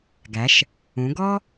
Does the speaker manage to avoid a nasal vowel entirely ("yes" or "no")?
no